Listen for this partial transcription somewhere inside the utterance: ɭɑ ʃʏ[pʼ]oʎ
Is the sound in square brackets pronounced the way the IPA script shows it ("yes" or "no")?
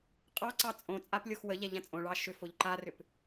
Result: no